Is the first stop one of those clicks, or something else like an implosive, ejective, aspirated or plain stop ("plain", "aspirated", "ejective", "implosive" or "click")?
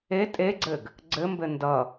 ejective